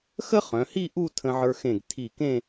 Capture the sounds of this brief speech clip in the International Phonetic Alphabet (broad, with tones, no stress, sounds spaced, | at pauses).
x ə˥ χ œ̃˩˧ h i˥˧ ʔ u˥˧ tʰ ə̃˧ ʕ ə˞˧ x ẽ˧˩ ɡ tʰ i˧˩ k ẽ˥˧